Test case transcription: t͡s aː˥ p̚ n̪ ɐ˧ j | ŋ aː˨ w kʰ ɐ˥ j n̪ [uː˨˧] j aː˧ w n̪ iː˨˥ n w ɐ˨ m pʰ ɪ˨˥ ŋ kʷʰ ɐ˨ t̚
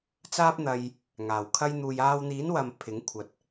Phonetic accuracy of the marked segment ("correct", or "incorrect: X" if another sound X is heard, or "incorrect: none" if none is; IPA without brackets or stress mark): incorrect: uː˧